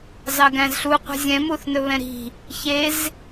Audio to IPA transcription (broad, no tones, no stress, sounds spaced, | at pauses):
z ɑ ɡ æ̃ z ɬ u qʷ e̤ zʲ ɛ̃ m u θ n ɵ β ɛ̃ ɾ i̤ | ç e z